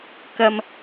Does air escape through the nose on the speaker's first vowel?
no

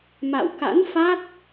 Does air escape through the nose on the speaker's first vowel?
no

